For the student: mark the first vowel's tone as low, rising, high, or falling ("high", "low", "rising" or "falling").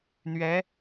rising